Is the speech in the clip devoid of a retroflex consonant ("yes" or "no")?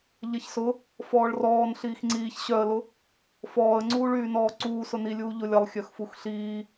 no